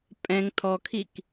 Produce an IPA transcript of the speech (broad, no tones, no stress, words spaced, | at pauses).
pʼɛ̃ŋ tʰɔkʰik